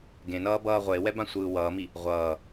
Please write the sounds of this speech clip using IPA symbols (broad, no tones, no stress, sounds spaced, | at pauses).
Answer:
ɡ ẽ n ʌː b ʌː ʁʷ e w ɛ b ã sʷ ɯː w ʌː m i | ʁʷ ʌː